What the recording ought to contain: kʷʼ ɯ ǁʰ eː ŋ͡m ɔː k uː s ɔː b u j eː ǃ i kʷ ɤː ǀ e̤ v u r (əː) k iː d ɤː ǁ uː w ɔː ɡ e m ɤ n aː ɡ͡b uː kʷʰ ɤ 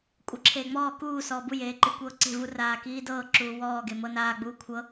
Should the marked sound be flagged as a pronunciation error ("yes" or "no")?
yes